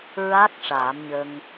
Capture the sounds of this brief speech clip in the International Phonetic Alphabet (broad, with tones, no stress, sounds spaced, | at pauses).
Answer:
ɹ a˦˥ k̚ ʂ aː˨˩˦ m ɲ ə˧ ŋ